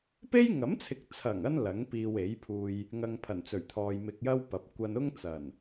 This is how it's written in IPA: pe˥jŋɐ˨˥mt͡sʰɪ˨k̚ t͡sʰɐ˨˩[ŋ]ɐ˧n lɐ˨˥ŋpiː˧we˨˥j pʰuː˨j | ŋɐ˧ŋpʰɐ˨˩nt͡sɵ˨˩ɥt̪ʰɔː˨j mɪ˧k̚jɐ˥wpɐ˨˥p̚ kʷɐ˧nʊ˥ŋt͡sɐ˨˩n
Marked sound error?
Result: no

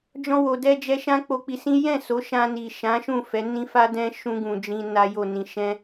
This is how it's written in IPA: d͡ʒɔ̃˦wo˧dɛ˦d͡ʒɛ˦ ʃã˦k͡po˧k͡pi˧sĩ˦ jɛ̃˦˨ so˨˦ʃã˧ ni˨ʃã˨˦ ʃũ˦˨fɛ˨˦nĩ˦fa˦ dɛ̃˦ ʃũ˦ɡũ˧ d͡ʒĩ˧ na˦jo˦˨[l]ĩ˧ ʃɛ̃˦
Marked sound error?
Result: yes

